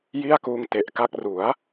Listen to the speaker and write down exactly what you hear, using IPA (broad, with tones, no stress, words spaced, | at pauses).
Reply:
ji˥˩a̯kuː˧ŋte˨˩ʔka˥˩k̚ ru˩˦a̯